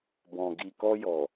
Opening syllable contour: low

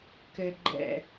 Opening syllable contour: low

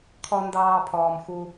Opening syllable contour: high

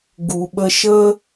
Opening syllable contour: low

